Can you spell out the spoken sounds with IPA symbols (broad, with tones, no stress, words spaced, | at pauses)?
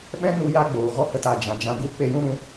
ɓɛ̃˦nu˧ja˧ ɡ͡boː˨ɣɔ˦hə˦˨t a˨d͡ʒã˨ d͡ʒã˧ɡu˦ k͡pe˦˨jũ˦ɾũ˨˦